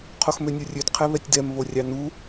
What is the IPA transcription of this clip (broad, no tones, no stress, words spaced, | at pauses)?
qʰoxmønʲorʲød qʰɛβɛtʲdɛm βorʲɑnu